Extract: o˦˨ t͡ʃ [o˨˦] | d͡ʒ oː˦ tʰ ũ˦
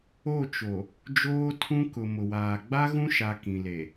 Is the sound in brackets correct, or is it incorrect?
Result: incorrect